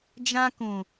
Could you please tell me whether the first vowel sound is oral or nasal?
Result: nasal